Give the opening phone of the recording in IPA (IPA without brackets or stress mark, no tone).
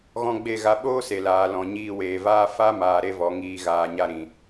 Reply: ɣ